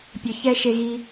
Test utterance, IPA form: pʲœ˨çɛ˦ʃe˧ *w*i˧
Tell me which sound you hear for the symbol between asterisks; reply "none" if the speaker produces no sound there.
ɣ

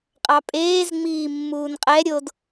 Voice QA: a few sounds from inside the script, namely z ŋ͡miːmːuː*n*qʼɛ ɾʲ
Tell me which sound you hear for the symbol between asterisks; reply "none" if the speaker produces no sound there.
n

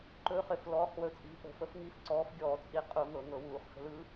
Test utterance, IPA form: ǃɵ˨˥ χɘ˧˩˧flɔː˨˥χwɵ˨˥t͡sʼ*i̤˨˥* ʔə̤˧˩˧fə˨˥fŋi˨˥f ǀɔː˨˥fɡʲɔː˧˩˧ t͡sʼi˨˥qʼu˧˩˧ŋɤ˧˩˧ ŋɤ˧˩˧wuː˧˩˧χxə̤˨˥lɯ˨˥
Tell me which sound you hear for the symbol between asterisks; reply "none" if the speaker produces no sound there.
i̤˨˥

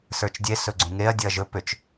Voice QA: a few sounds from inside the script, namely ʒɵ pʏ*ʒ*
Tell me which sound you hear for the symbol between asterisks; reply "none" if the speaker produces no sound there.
t͡ʃ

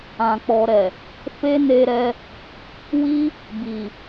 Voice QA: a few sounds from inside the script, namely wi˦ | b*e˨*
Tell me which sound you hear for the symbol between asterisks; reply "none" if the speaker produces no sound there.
i˨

